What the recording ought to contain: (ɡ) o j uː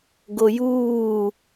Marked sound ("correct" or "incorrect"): correct